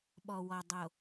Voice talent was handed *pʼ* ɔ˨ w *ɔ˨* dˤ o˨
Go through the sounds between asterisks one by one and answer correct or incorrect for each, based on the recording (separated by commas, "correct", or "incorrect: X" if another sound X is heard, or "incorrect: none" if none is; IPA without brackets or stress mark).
incorrect: ɓ, correct